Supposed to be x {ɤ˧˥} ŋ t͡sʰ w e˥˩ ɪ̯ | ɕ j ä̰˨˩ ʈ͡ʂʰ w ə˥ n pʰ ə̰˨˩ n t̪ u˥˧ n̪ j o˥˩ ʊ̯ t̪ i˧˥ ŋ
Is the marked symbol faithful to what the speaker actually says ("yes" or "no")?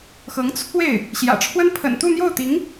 yes